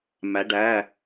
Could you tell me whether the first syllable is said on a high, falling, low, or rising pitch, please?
rising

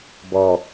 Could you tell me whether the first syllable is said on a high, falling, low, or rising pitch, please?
low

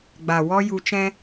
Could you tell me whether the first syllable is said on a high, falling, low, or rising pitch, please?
low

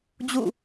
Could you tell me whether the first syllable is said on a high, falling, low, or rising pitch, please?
falling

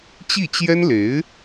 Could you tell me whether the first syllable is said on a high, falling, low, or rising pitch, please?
falling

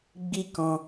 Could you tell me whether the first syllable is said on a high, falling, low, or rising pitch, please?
high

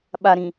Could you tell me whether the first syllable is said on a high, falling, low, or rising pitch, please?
low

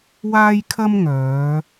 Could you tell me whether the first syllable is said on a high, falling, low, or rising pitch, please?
high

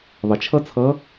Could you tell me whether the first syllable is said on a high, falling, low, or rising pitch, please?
low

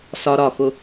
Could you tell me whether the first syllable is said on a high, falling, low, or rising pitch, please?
high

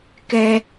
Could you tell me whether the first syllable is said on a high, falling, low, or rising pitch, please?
high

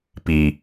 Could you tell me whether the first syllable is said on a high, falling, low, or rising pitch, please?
low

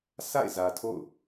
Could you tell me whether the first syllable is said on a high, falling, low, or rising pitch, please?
falling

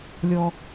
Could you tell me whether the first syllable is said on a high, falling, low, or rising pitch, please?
low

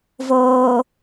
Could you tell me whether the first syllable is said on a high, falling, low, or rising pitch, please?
low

